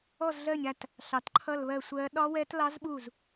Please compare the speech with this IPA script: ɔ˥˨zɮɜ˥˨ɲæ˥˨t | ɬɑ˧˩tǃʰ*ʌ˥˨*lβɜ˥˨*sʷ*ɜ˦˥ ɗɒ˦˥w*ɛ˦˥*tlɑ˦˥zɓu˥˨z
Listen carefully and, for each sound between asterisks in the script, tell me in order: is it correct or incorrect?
correct, correct, correct

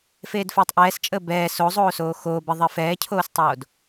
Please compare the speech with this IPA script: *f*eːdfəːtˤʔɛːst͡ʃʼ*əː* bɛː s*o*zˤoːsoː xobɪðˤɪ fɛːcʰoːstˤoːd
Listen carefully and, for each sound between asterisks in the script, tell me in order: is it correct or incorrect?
correct, correct, correct

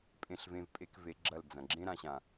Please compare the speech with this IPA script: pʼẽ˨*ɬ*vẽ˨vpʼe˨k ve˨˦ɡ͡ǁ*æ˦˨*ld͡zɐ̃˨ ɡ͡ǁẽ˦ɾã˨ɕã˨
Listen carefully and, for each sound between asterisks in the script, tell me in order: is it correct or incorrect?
correct, incorrect: ɐ˦˨

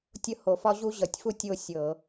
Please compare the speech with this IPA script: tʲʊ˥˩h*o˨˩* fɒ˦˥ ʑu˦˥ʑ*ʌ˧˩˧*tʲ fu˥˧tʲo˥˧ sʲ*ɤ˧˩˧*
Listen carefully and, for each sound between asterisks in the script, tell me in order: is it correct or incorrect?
correct, correct, correct

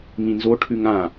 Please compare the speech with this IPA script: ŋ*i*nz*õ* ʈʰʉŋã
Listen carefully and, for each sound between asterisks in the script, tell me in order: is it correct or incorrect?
incorrect: ĩ, incorrect: o

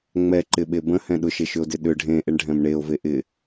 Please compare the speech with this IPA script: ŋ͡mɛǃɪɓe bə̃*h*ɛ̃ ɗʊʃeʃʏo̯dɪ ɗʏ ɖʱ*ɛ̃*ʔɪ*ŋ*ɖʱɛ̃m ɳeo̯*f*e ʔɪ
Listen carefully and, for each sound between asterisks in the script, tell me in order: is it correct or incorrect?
correct, incorrect: ẽ, incorrect: ɳ, incorrect: v

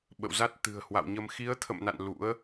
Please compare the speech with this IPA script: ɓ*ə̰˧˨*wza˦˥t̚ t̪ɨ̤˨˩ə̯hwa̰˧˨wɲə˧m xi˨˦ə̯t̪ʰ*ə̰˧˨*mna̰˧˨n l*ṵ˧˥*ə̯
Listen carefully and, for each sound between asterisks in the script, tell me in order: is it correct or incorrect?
correct, correct, correct

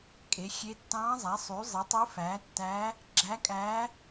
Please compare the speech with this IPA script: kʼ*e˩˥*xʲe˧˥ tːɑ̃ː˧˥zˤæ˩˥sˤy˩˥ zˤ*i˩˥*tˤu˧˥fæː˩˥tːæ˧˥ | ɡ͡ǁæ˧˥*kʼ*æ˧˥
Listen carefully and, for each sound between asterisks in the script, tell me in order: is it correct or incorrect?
correct, correct, correct

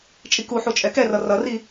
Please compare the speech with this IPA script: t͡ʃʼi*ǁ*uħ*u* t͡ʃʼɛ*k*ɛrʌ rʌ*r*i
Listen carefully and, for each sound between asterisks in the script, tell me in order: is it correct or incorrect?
incorrect: k, correct, correct, correct

